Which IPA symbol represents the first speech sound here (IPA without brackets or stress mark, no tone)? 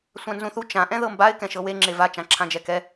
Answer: sʷ